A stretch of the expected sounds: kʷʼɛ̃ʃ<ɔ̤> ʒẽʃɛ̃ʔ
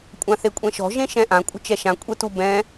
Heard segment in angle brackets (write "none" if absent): ɔ̤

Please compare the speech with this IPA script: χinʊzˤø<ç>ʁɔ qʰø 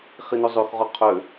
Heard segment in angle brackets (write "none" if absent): x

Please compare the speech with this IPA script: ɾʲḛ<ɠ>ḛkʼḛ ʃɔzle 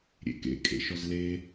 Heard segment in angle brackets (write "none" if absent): k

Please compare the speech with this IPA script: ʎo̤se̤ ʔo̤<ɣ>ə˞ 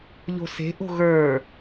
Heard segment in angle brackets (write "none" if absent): ɣ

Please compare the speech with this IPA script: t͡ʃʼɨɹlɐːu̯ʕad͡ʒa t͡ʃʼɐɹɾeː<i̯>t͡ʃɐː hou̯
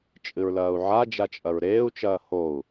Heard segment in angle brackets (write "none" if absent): u̯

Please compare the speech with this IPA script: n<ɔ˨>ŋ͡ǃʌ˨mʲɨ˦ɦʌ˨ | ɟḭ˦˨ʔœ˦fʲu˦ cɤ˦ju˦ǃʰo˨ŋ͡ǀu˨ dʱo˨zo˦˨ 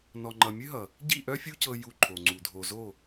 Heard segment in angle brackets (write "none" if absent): ɔ˨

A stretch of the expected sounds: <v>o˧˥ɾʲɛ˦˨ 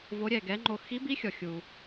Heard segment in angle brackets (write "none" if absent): v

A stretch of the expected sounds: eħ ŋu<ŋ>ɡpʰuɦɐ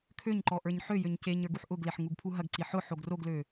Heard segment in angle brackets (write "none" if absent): none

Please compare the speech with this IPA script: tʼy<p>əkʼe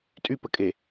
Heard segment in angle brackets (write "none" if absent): p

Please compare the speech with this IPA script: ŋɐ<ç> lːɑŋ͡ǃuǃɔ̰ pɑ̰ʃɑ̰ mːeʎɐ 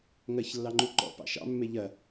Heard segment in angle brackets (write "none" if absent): ç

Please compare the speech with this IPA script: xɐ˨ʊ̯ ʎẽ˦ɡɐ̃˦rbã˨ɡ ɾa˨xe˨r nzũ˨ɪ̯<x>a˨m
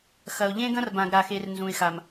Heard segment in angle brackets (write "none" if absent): x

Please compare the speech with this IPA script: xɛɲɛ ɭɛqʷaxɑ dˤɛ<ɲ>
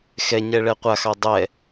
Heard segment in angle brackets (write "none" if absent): none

